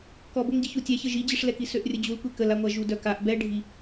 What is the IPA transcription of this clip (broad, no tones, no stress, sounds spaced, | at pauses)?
k ɔ b o ŋ ɟ ə ç u tʲ ɛ ç ə ʒ i d͡ʑ i ʂ l ɛ k i s ø ʔ rʲ ə d͡ʑ u l kʷ e k ə l a ŋʷ a ʒ u d œ k a ʔ b ɛ ɖʱ i